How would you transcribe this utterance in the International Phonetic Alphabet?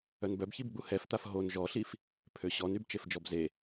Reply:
œnbœbçibɡ͡bu hɛft̪af ɦon ʒɔɬif | pʰøɕɔnyb t͡ʃefd͡ʒɔbze

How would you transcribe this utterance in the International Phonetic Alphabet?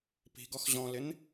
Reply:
pi̤ɡɔx ʑɔ̃lɪn

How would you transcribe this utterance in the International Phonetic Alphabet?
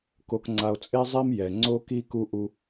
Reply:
ko˨kŋ͡ǀa˨o̯ t͡sʼe˦zˤi˦m jɛ˨ ŋ͡ǀo˦ki˦ ku˦ʔu˦

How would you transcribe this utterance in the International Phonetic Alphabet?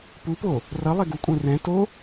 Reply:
pupo | rʌlˠɛ ɡukʷʼɛ̃ rɛ̃ to

